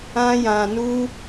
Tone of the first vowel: high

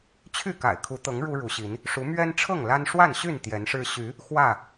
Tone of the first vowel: falling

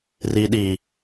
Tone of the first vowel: low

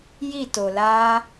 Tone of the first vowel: falling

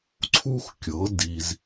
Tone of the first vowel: high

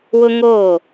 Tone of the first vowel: high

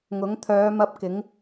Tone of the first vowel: rising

